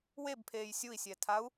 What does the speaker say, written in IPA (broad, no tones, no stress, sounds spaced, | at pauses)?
w e b pʰ eː j sʲ u i̯ sʲ ɛ tʰ a u̯